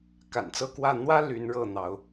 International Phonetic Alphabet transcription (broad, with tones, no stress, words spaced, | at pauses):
ka̰˨˩nt͡sɤ˥˨kwä˥˨ n̪wä˦ ly˨˦nɻɤ˥˨n̪ɑ˨˦ʊ̯